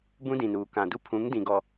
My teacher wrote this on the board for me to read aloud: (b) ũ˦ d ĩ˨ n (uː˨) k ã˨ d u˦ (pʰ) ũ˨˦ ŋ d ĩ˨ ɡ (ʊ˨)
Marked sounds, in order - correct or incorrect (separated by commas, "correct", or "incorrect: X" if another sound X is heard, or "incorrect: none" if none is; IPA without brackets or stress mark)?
correct, correct, correct, incorrect: ɔ˨